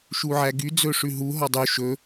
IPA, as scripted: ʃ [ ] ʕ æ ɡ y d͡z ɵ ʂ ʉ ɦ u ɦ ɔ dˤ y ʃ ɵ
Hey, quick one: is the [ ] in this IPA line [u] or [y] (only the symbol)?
u